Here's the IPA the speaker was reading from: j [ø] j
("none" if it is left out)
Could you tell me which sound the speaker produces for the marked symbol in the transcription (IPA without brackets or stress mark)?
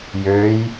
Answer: ø